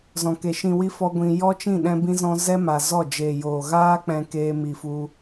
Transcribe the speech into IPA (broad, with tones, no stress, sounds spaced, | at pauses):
z ɔ̃˨ k e˨ ʃ ĩ˧ w i˦ f ɔ˦ ɡʷ ĩ˧ j ɔ˦ t͡ʃ ĩ˦˨ ɗ ɛ̃˦ b ĩ˦ z ɔ̃˦ z ɛ˦ m a˨ z ɔ˦˨ d͡ʒ eː˨ j oː˨ ɣ aː˦ k͡p ɛ̃˦ k eː˦ m i˧ f u˦